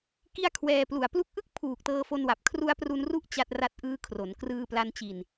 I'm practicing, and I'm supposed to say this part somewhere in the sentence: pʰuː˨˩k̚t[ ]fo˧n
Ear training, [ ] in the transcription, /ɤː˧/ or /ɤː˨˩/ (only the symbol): ɤː˧